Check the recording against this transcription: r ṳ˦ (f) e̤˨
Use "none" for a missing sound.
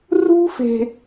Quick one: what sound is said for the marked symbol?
f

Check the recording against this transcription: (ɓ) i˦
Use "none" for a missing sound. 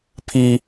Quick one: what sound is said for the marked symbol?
pʰ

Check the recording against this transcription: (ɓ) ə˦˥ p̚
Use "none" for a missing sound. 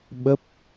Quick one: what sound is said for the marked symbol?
ɓ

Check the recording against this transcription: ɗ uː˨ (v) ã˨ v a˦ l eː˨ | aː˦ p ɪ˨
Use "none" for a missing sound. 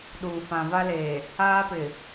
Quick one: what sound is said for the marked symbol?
f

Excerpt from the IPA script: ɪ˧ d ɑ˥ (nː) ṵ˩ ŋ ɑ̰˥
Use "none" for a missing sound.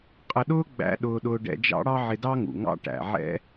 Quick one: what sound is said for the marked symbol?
ŋ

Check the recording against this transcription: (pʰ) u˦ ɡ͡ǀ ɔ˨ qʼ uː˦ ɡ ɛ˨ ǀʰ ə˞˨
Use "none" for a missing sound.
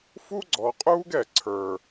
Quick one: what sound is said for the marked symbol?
f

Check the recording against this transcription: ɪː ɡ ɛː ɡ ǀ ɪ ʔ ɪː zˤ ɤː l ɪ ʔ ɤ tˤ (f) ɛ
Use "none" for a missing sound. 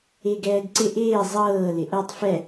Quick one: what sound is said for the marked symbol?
f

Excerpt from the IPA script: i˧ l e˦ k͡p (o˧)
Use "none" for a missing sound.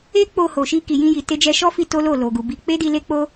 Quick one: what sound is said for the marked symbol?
o˦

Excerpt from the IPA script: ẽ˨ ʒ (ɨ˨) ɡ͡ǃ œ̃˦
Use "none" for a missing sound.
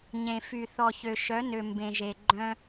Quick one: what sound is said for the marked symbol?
e˨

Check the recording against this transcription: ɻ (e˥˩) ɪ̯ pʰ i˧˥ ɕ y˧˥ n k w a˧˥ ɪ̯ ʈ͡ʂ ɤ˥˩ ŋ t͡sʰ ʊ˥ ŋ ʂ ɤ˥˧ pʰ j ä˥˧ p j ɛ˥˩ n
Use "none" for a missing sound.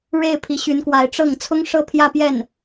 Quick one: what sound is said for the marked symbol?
e˥˩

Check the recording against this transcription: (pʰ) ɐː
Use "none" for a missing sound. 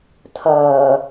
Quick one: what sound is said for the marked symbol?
tʰ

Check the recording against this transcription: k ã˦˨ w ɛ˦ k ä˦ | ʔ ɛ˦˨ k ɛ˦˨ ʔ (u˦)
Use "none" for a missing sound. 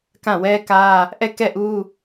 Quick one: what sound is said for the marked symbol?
u˦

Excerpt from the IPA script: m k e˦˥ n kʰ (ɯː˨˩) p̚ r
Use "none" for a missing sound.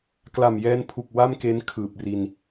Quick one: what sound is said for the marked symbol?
ɯː˨˩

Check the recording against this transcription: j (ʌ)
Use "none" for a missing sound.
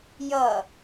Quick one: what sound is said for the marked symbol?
ʌ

